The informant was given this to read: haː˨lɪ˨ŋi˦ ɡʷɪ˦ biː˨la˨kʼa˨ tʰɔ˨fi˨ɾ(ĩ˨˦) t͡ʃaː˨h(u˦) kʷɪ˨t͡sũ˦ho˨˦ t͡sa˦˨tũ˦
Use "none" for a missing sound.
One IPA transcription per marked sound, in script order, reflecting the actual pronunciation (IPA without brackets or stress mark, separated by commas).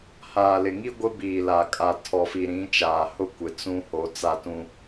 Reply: ĩ˨˦, ʊ˦